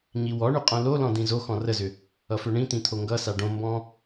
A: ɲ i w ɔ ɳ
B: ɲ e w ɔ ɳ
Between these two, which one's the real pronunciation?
A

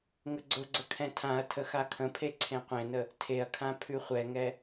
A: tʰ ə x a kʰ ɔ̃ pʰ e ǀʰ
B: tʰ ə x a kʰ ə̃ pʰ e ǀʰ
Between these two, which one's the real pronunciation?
B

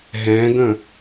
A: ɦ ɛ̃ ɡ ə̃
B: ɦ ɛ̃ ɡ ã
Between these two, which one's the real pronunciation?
A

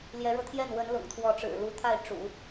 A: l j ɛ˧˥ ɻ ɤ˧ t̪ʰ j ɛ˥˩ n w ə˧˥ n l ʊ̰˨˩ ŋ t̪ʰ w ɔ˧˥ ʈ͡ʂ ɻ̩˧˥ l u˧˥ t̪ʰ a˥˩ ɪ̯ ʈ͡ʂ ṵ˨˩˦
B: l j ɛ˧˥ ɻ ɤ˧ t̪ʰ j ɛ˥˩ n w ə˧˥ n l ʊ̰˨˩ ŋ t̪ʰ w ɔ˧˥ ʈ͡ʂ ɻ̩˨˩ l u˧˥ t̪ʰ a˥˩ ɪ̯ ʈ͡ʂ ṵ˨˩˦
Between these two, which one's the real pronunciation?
B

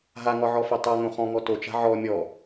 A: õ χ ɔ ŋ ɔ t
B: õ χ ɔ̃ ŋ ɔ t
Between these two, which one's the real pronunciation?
B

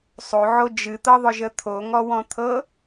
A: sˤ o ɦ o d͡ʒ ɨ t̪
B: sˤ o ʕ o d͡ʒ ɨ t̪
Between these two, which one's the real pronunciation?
B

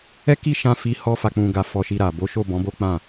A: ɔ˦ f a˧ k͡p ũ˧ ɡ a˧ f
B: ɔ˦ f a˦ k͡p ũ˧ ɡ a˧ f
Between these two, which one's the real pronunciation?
A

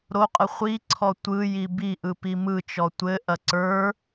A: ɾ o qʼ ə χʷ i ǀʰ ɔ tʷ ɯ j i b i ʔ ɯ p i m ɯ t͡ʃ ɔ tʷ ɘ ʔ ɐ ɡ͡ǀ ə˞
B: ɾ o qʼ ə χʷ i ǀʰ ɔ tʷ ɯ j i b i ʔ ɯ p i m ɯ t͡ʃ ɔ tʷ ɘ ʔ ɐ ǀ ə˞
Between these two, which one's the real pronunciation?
B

